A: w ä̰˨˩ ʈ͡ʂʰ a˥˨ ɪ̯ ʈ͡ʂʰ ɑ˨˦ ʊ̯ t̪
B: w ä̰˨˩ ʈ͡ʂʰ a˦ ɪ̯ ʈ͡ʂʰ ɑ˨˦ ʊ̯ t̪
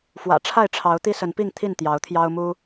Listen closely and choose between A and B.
A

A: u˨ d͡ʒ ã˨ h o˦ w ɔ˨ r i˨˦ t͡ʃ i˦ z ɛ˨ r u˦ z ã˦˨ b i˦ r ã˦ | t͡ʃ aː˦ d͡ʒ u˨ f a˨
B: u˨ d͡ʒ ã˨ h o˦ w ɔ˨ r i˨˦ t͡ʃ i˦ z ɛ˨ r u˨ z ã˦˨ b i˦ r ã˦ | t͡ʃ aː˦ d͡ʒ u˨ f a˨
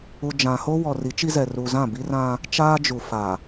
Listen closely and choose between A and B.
B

